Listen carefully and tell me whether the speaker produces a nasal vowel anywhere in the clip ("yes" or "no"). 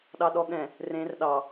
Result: yes